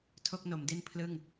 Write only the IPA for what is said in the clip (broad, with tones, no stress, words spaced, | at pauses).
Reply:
tʰo˥˩k̚no˩˦mdi˥˩n pʰlɯ˥˩ŋ